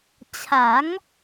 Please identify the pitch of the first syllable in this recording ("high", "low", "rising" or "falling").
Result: rising